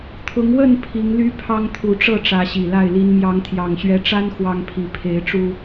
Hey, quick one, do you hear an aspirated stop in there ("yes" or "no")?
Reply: yes